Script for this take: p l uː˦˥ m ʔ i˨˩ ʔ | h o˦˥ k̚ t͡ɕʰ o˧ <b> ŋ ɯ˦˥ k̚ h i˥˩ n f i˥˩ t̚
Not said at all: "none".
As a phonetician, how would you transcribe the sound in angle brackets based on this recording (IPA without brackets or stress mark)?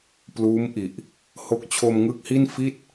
m